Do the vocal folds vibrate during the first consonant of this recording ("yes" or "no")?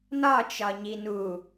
yes